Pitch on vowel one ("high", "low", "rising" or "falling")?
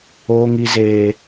high